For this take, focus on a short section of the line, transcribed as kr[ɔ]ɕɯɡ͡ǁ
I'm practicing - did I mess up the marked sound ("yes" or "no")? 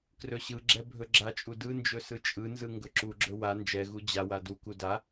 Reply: yes